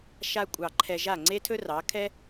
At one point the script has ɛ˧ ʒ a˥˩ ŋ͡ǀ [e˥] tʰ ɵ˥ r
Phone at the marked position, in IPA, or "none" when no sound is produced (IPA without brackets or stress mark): e˥